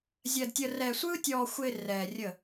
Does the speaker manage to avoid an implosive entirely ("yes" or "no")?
yes